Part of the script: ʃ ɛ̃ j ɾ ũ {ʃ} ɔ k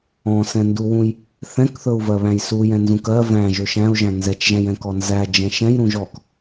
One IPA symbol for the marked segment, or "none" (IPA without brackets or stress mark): ʒ